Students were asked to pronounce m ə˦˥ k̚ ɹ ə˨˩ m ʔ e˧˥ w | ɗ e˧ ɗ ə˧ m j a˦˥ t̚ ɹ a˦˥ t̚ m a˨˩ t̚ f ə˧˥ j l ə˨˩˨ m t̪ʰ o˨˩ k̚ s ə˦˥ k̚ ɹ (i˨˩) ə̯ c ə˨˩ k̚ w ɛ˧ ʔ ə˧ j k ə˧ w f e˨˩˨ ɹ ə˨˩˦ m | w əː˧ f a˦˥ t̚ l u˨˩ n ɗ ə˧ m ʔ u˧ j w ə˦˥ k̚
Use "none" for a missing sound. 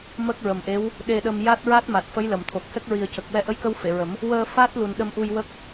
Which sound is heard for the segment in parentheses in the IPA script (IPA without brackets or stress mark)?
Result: i˨˩